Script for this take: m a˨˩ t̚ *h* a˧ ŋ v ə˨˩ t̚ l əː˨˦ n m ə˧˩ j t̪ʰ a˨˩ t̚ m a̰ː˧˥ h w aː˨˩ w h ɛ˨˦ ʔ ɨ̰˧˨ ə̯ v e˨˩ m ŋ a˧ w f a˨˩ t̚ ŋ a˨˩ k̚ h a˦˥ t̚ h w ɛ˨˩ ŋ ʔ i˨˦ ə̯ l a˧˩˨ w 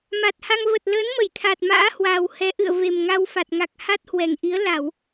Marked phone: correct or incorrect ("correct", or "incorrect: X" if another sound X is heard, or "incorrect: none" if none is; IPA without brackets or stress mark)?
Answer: correct